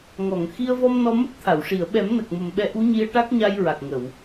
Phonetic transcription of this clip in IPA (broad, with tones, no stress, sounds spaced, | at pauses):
ŋ ɔ˨˩˨ ŋ x i˧ ə̯ v ɔ˧ m n ɔ˧ m ə˦˥ k̚ t̪ʰ a˨˩˨ w ʂ i˨˩˨ ə̯ ɓ ɛ˨˩˦ m n ə˨˩ k̚ m ə˨˩ m ɓ ɛ˧˥ ʔ u˧˥ ɲ i˧ ə̯ ʈ a˦˥ k̚ ɲ a˧ j ɹ a˨˩ k̚ ŋ ə˨˩˨ w